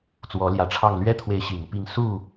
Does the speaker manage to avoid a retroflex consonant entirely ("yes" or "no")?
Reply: no